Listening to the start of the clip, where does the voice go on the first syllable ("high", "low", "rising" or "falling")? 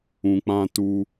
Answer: low